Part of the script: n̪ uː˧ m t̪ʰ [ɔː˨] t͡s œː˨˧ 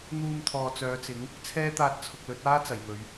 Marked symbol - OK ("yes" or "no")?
yes